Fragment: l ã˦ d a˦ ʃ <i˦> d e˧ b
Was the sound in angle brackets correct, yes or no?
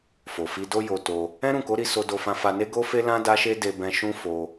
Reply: no